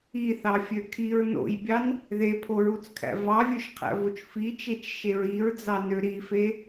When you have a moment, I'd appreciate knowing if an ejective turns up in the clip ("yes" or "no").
no